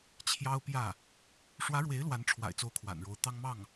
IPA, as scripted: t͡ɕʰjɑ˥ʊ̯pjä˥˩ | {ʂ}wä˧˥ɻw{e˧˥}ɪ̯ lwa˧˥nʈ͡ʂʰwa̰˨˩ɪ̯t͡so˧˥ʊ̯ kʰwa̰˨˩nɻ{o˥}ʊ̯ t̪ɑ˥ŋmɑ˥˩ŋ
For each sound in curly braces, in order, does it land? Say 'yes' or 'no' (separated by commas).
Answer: yes, yes, no